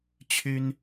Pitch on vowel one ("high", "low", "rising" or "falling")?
high